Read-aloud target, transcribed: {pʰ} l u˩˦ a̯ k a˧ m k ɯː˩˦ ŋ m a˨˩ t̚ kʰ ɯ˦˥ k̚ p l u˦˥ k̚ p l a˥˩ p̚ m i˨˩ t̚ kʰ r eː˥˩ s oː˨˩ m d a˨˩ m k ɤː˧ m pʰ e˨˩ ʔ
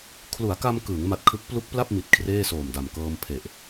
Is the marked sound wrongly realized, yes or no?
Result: yes